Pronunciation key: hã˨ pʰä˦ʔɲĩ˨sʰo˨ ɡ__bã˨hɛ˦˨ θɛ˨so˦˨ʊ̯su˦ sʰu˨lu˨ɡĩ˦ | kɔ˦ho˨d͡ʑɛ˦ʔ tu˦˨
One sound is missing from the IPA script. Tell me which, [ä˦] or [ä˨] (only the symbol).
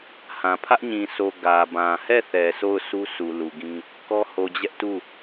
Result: ä˨